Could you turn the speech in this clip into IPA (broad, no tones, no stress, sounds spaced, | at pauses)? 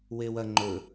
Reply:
w e w ɐ ŋ͡ǃ ɵ